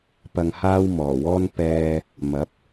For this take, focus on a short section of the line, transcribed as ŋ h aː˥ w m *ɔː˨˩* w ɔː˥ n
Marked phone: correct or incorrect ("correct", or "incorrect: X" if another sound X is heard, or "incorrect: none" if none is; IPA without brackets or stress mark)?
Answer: correct